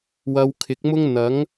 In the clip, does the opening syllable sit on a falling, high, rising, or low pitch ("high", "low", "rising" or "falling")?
low